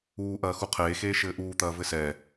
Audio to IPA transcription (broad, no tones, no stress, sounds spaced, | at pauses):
uː ʔ ɐː x u qʰ eː x eː ʃ ɘː ʔ uː t̪ ɐː v ɘ s ɛ